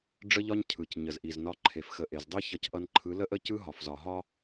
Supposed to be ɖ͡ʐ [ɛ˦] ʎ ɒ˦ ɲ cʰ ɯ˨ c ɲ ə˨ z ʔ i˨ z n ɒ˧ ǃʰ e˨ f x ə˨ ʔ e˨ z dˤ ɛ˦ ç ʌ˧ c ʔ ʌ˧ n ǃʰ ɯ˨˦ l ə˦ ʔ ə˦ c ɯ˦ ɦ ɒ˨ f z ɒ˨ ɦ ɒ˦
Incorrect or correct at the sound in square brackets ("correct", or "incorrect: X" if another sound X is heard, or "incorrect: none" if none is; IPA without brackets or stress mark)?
incorrect: ə˦